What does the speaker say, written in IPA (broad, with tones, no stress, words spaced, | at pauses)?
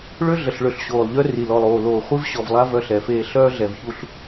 ɭø˦ ɮə˨ɬɭø˨ɬɕoː˨lˠʎœ˦ ri˨lɔ˨lˠ oː˨loː˨ χʷi˦vɕɔ˨vlˠa˦ vœ˦ɬɛ˨˦feː˦ ɬœː˦ ɮɛ˨vçu˦ɬ